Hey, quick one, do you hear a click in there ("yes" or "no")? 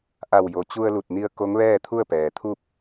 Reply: no